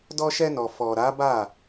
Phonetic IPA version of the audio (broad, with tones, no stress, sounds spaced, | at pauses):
d ɔ˧ ʃ ɛ˧ n ɔ˨ f ɔ˨ ɾ a˨˦ b a˦˨